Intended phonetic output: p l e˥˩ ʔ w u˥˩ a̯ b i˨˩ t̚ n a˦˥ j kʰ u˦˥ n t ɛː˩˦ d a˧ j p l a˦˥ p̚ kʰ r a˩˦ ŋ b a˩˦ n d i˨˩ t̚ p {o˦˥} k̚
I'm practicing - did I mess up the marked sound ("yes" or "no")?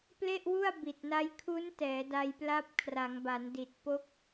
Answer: no